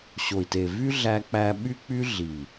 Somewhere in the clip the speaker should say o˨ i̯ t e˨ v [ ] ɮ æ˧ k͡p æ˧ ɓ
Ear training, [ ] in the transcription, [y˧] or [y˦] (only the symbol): y˦